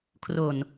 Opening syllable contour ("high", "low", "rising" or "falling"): low